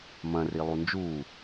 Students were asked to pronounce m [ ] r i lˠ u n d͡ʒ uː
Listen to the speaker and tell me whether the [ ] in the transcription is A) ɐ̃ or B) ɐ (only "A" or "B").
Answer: A